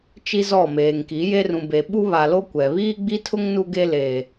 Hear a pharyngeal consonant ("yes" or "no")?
no